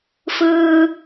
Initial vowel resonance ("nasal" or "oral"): oral